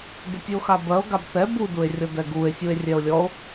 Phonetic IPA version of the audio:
b ɪ tʲ ʉ o̯ x a b ɜ o̯ ɡ a b θ ɛ b u d u e̯ rʲ ɔ d ɛ ɡ u e̯ sʲ u e̯ rʲ ɛ o̯ lʲ ɔ o̯

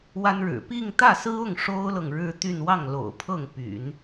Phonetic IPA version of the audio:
w a˥ n ɻ ɻ̩˨˩ p i˥˧ ŋ t̪ ä˥˩ s ɹ̩˥ ʊ˥˩ ŋ ʂ o˥ ʊ̯ l ɤ˨ ŋ ɻ ɻ̩˥˧ t̪ y˥˧ n w ɑ˥˩ ŋ l o̰˨˩ ʊ̯ pʰ ɤ˥˩ ŋ p y̰˨˩˦ n

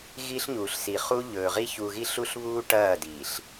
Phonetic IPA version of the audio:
ɣ i˦ ɬ ɲ uː˨ ɬ s i˨ χ u˦ ʎ ɵː˨ ʁ i˦ ç u˨ ɣ i˦ ɬ u˦ ɬ β uː˦ ʈ ɐː˦˨ d iː˨ ɬ

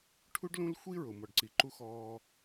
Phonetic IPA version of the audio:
ʈʰ u˦ ɖ l ũ˦ l xʷ i˦ ɹ ʊ˨ m ɔ˨ ɖ ǀ i˨ ǃ u˦ x ɔː˦

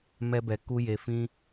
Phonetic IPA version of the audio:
m ɛ˦ b ɛ˧ k u˦ j e˧ f ĩ˦

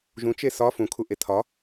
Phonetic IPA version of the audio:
ʒ ũ t͡ʃ e s ɒ f ũ kʰ u ʔ e tʰ ɒ

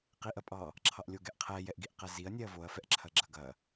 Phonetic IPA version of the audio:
q i ʔ ɐ pʼ ɑ | ǁʰ ɑ ʔ lʲ o ɡ ɛ ʔ qʰ ɛ j ɛ ʔ ɡ i ʔ q ɛ z i ɐ̯ nʲ ɛ ɐ̯ v o ɐ̯ f ɛ ʔ ǁʰ ɐ ɡ͡ǁ ɐ ɡ ɐ

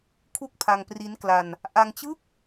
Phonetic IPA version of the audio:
kʰ u˥˩ k̚ pʰ a˧ ŋ p r i˦˥ n k l a˧ n | ʔ a˧ ŋ t͡ɕ ɯ˥˩ k̚

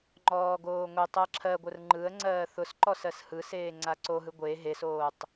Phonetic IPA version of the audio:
ŋ͡ǃ ɔː ɡ oː ŋʷ e tˤ ɜ ǁʰ ɜ ɡʷ ə r ŋ͡ǃ ɯ ə̯ ŋ͡ǀ ɜː θ ʊ s ǃ ɔ s ɜ s h ɯ s eː ŋ͡ǀ a ǀ o ɦ ɯ ɡʷ e ɦ e s oː tˤ

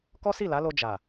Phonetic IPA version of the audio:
k ɔ˦ s i˦˨ l a˨˦ l o˧ d͡ʒ a˨

